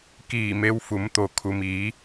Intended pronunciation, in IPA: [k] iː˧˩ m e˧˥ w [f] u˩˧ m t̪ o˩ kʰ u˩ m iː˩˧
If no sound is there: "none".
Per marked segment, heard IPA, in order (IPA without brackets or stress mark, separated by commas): k, f